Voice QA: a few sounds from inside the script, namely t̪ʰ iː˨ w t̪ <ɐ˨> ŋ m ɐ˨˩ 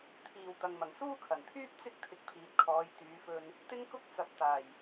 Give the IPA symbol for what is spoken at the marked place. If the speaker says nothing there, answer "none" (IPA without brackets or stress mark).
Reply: ɐ˨